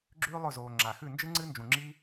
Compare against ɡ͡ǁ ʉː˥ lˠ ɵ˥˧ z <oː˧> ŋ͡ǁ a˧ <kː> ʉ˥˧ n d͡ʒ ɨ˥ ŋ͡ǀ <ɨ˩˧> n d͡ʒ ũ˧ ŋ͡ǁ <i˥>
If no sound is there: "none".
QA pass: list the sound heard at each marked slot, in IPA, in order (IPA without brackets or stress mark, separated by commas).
oː˧, x, ɨ˥, i˥